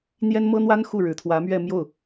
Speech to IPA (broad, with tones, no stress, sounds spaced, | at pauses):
n̪ j ɛ˥ n m ɤ˥ n̪ w a˥ n x u˥˩ ɻ ɻ̩˨˩ t̪ʰ w ä˧˥ m ɥ ɛ˥˧ m j o˥˩ ʊ̯